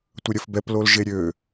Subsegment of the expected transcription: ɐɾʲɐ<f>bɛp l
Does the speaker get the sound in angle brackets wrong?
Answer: no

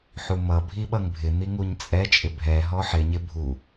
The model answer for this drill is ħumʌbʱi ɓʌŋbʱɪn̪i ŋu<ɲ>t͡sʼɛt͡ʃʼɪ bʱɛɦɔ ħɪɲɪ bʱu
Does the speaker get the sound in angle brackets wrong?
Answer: no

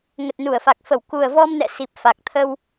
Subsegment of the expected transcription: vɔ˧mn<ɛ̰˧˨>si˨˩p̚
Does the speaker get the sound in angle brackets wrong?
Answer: no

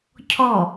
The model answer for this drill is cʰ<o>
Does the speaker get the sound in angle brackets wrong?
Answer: yes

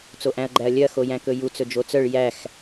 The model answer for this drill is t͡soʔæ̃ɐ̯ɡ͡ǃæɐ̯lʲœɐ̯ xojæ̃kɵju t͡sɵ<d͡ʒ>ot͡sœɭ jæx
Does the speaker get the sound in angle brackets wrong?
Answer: no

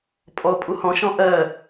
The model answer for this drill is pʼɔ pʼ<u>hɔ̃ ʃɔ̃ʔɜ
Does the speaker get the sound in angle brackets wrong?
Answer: no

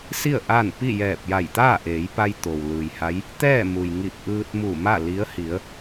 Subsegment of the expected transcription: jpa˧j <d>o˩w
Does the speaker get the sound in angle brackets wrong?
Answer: yes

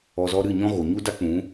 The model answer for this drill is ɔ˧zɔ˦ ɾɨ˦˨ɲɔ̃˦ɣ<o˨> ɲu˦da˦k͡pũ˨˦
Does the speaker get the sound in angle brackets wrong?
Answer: no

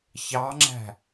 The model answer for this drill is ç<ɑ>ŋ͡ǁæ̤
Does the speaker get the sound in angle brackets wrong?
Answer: no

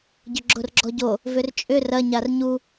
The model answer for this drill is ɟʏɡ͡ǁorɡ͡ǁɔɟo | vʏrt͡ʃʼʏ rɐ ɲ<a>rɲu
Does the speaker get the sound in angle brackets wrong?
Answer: no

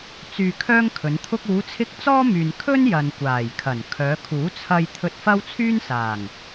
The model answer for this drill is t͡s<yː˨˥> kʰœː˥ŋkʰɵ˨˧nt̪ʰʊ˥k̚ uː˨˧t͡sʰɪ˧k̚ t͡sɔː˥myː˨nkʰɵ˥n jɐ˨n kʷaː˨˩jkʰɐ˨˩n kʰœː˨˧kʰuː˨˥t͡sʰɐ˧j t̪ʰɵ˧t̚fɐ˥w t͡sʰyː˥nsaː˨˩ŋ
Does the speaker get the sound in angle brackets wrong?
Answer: yes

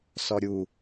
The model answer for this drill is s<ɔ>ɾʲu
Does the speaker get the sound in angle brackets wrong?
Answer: no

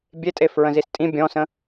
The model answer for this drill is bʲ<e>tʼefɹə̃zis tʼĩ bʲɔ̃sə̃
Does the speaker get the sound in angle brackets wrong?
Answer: no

